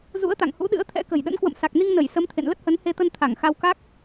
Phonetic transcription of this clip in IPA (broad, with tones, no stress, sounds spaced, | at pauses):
z ṵ˧˥ ə̯ t̪ a̰˧˨ ŋ h ṵ˧˥ ɗ ɨ̰˧˥ ə̯ t̪ʰ ɛ̰˧˥ k ə̤˨˩ j ɗ ə̰˧˥ n k w ə̰˧˨ m s a˨˩ k̚ n i˧ ŋ n ə˧˩ j s ə˨˦ m t̪ʰ ḛ˧˨ n l ə˦˥ t̚ h ə˨˦ n h e˧ t̪ ə˧ n t̪ʰ a˧˩ ŋ x a˧ w k a˦˥ k̚